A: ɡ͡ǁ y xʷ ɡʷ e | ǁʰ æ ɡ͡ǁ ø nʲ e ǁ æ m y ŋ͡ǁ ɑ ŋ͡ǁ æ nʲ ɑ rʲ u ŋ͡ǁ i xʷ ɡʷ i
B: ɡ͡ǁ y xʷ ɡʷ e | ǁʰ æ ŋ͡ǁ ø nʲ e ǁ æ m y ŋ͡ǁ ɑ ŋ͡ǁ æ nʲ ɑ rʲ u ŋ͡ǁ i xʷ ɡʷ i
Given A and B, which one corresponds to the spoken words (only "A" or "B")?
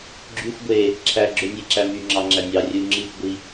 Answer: A